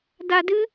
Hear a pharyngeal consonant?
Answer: no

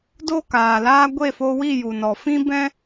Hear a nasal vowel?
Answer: yes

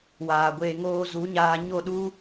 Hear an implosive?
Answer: yes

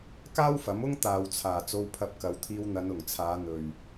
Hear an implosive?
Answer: no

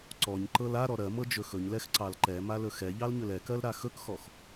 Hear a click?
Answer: yes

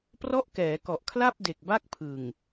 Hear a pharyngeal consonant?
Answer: no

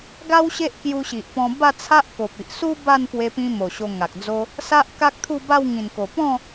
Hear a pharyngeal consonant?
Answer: no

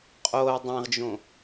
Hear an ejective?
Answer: yes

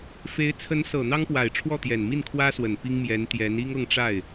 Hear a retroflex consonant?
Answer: yes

